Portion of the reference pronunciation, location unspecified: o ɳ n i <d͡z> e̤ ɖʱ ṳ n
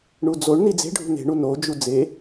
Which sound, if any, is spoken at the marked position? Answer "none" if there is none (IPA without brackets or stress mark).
d͡z